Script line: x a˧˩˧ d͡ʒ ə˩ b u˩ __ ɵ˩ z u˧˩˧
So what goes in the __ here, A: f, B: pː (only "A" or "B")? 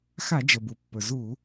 B